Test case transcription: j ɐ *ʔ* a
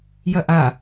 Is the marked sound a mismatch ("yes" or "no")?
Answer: no